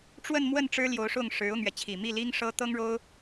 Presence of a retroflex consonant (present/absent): present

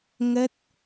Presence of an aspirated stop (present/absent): absent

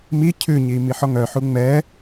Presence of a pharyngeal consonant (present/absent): present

